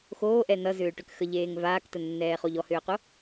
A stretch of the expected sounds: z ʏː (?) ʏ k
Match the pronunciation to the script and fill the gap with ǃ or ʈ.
ʈ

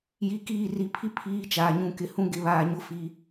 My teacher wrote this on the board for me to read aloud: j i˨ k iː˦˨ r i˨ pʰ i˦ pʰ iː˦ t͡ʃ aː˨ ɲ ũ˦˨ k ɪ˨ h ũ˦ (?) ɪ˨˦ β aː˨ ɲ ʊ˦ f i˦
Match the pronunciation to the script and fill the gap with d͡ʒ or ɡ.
ɡ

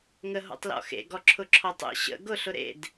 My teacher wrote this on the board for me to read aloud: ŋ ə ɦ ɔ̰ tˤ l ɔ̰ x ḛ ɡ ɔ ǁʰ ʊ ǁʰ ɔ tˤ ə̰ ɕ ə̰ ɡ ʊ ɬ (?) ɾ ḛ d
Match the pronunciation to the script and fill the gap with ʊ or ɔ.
ʊ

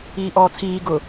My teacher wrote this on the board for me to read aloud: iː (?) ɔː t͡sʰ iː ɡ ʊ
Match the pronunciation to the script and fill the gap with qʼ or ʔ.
ʔ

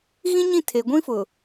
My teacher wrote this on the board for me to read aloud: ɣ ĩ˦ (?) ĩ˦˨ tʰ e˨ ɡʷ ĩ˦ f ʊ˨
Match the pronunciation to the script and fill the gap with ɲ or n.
ɲ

